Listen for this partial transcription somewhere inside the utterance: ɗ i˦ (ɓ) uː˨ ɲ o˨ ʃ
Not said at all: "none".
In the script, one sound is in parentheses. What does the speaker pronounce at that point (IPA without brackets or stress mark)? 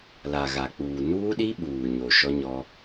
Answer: ɓ